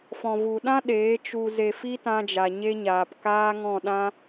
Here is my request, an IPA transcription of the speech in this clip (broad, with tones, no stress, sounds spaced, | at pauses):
f ɔ̃˨ v u˨ ɗ ã˦ ɗ eː˨˦ t͡ʃ u˧ z e˧ f i˦ t ã˦ d͡ʒ a˧ ɲ e˦ ɲ aː˧ p k aː˦ ŋ ɔ̃˦˨ ɗ ã˦